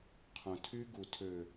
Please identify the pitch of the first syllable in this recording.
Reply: low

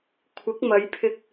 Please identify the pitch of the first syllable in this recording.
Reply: rising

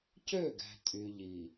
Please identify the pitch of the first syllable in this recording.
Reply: falling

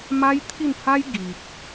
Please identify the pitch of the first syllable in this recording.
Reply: high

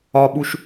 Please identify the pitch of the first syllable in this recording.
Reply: low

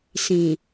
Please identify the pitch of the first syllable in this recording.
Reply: low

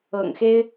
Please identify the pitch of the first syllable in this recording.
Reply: low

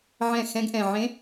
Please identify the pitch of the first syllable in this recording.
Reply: falling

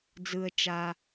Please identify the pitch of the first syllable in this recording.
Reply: low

